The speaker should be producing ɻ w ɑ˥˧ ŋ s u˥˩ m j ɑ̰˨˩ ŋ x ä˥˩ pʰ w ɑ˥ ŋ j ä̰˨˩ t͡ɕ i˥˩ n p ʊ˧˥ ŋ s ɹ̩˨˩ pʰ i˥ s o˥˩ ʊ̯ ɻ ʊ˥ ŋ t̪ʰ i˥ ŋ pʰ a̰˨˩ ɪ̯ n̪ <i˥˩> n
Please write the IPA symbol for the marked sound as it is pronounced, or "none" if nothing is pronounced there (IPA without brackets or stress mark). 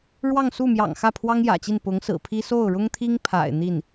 i˥˩